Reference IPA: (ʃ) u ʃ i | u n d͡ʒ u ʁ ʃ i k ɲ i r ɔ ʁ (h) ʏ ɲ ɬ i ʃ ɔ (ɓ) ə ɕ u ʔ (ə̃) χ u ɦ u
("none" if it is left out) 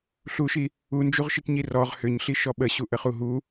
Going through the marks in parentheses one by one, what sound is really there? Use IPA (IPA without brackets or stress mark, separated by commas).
ɬ, h, ɓ, ə